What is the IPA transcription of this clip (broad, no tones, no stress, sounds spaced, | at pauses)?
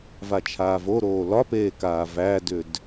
v a t͡ʃʰ aː v o ɾ oː l ɒ p eː k aː v æ d ʏ d